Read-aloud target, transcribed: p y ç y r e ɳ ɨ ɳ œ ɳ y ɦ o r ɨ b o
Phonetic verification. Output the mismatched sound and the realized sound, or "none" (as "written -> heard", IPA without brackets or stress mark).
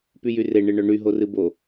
ç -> j